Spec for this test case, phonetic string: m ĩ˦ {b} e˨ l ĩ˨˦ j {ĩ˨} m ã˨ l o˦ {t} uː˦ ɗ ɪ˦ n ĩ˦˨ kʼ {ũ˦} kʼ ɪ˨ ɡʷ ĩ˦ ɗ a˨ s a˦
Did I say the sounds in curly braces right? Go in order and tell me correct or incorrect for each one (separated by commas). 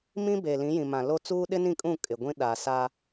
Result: correct, correct, incorrect, incorrect